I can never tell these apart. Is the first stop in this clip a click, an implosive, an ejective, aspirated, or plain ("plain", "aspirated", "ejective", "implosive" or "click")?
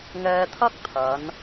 aspirated